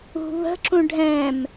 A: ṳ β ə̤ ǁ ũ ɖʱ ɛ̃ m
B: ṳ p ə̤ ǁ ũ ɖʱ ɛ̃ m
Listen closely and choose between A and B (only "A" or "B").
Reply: A